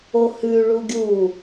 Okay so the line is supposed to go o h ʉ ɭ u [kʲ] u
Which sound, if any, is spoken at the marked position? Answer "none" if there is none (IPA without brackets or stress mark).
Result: ɡʲ